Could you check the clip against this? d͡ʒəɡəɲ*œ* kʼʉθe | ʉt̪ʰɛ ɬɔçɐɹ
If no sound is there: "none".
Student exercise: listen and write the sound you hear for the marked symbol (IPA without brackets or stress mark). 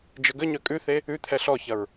œ